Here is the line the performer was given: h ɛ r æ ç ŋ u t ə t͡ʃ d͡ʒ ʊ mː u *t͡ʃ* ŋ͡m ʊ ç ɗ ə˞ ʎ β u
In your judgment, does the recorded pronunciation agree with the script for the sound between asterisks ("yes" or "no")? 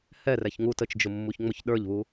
no